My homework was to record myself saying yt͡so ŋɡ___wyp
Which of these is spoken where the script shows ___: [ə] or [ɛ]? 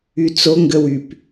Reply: ə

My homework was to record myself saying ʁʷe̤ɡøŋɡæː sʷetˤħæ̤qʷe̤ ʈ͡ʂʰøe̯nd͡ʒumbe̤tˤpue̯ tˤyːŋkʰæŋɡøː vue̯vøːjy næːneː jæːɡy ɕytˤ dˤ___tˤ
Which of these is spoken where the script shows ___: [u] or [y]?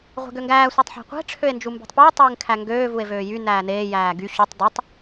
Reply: u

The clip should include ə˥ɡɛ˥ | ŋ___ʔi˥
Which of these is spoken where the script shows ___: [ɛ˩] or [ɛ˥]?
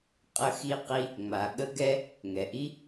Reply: ɛ˩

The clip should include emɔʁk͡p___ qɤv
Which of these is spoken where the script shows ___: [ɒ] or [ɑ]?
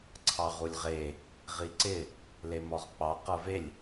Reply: ɑ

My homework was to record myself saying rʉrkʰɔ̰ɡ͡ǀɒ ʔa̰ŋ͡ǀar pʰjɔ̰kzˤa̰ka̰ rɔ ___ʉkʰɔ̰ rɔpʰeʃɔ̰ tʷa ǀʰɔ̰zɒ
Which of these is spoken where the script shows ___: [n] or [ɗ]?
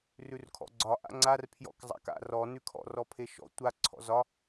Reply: n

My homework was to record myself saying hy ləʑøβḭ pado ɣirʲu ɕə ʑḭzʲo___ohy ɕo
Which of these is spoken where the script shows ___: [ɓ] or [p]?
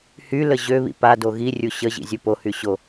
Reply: p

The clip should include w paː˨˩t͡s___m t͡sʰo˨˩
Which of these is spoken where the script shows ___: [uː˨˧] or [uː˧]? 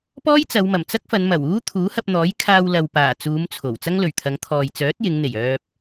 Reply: uː˨˧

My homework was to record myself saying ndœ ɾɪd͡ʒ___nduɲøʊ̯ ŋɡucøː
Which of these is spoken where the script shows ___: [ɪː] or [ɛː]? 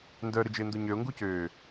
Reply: ɪː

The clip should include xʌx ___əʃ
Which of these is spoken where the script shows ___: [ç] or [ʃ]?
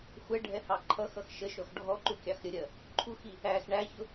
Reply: ʃ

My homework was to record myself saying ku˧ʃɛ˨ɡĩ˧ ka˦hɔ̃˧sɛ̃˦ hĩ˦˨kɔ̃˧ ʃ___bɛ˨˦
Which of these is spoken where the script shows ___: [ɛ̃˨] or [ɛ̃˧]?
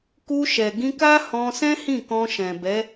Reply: ɛ̃˨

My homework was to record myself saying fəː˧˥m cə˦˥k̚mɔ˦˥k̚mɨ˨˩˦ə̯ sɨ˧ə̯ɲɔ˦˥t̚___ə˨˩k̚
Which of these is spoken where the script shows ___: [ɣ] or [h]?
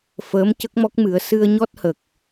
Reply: h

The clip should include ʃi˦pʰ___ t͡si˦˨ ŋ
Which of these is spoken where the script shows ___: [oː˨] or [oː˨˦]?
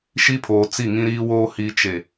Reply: oː˨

